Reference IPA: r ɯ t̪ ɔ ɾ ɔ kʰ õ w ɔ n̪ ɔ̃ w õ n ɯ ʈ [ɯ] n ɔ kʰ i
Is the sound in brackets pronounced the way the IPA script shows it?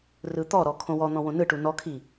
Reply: no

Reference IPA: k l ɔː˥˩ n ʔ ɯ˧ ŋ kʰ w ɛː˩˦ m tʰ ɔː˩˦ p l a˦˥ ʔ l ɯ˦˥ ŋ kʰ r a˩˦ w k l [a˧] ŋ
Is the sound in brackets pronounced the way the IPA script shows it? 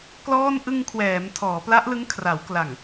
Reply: no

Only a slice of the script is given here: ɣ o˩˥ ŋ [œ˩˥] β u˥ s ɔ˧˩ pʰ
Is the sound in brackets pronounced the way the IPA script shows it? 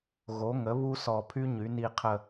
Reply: no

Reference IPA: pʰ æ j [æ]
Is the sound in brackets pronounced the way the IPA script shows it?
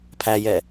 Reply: no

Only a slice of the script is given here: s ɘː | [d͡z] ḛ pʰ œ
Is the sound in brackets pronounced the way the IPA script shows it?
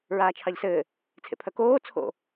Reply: no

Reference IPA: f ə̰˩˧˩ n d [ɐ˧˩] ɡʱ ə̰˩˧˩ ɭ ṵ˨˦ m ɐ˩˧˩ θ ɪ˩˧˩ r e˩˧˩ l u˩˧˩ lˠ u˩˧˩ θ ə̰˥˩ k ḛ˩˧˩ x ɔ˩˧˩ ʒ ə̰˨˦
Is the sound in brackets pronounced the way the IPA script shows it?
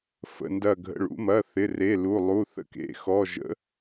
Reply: yes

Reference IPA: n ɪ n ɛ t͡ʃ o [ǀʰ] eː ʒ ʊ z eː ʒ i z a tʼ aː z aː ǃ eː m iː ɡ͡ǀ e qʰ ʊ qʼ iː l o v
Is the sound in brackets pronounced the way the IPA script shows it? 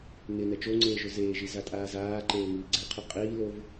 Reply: no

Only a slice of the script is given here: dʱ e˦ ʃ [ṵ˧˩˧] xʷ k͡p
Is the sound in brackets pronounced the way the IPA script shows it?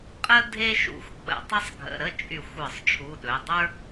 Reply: yes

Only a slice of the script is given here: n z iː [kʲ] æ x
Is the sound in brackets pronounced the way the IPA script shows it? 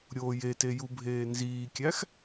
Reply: yes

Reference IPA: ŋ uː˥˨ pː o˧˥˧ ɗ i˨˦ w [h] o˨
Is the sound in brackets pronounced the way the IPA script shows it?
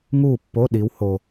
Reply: yes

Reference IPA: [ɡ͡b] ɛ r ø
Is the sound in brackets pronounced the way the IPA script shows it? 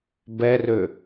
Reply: no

